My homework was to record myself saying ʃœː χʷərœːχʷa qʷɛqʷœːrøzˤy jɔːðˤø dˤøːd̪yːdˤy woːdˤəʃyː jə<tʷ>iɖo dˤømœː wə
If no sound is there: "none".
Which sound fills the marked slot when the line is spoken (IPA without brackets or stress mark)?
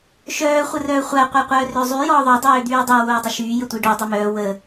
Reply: tʷ